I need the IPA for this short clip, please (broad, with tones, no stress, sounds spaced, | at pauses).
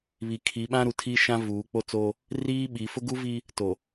β i˨ kʰ i˨˦ ɓ ã˦ ɾ u˨ tʰ iː˦ ʃ ã˦ v uː˨˦ k͡p o˦ t͡s oː˦ | r iː˦ ɓ i˨˦ f ʊ˦ ɡ u˦ v i˦ | t o˨